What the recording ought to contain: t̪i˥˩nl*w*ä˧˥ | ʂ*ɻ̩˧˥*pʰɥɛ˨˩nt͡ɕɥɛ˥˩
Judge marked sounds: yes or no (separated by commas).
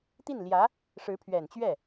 no, yes